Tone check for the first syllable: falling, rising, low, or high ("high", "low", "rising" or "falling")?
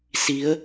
rising